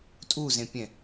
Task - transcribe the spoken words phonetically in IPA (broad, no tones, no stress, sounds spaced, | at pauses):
tʼ u z ẽ pʲ ɛ̃